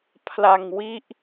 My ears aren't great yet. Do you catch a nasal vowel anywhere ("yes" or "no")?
no